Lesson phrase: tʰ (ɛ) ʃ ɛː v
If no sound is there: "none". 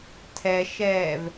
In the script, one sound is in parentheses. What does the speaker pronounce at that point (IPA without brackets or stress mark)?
ɛ